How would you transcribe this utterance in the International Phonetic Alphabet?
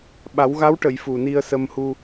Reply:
ɓa˨˩˦wɣa˧˥wʈə˨˩˨j fu˨˩ni˧ə̯ sə˧mhu˧

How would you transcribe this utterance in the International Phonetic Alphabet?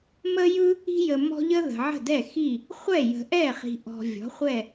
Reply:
mə˦jɯ˦ | i̤˦jə˨mɔ̤˦ʎə˦ ðə̤˨ʕə̤˥˩dɛ˥˩ xi˥˩ | χʷɛ˥˩jə̤˨ʔɛ˥˩χi̤˨ ʔɔ̤˨vʲɔ̤˩˥ χʷɛ˥˩

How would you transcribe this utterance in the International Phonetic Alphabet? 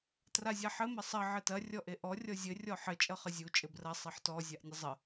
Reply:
trazʲaħɘ mɐsˤʌ ʕɘtɐ rʲɔʔeʔɔ rʲɔzʲɘ rʲɔħɘ t͡ʃʼʌχəzʲu t͡ʃʼɘbrɐ sˤɘħtɔ zʲaʔnʲəzˤə

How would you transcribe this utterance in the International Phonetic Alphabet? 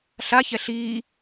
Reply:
ɬaçɛ ɬiː

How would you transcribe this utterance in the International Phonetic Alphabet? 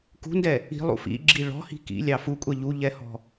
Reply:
kṳndɛ | i̤lˠṵ fḭɡ͡ǁi ɭɔ̤hi̤ kḭlʲɑ fukʷʼɛ ʎuʎɛhɔ̤

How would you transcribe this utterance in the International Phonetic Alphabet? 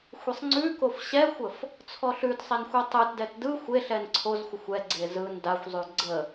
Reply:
xʷesˤŋ͡ǀʉkof ɕɛxʷəf | t͡sʰɔɬʉtsˤen xʷɛtˤɯtdɛt dɯ xʷeɬɛn ǀʰozxʷəxʷ ɛɡ͡ǀe zɯn daxʷzˤʉ ɡ͡ǀə

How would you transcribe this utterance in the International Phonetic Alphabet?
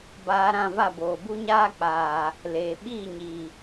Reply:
baː˧ɾã˦˨va˦˨ boː˨bu˦ɲaː˦k͡paː˨ | leː˨ ɓiː˦˨ɲiː˨

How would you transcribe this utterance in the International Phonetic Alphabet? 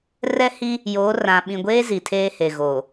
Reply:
rɛ˦hi˦ | joː˨˦rã˨ ɓĩ˨ɡʷeː˦ zi˨tʰeː˦he˨ɣoː˨

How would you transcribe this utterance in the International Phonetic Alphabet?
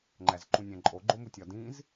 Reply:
ŋ͡ǃæzǃũnʲæ̃ǃʼo ɡ͡ǃomutʲɒ dĩz

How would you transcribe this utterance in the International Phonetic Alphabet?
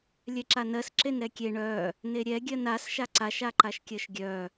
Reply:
lʲɛǁanɜs ǁenɾɛkʲe ɳœ | neɾʲɛ ɡʲɜnas ʃaǀaʃ aǃaʃkʲɜʃɡʲœ

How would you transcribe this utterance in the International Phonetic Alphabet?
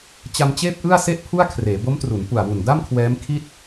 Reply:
t͡ɕa˧mt͡ɕeː˥˩p̚ʔɯ˥˩a̯ se˥˩ʔpʰu˥˩a̯kʰreː˩˦ bo˦˥mtru˩˦n pu˨˩a̯wu˨˩n da˥˩mkʰwɛː˦˥m kʰi˥˩t̚

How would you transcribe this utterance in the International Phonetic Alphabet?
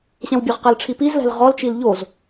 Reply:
ɕɛ̃wbʲʊʁqɛlʈ͡ʂʰi pizlɛ̤l ʁɔlt͡ʃil ʎoz

